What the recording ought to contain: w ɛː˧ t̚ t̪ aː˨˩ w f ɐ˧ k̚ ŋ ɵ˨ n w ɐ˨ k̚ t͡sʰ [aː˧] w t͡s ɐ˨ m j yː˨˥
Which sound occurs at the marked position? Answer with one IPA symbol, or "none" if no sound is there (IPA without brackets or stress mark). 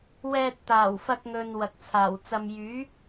aː˨˩